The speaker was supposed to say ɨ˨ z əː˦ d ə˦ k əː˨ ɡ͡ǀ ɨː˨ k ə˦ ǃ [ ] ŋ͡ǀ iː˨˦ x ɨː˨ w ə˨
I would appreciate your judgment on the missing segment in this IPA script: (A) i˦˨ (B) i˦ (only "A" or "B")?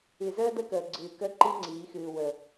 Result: B